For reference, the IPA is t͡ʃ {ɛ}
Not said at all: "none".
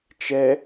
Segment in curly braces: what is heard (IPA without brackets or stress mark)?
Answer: ɛ